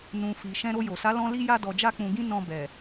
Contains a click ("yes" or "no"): no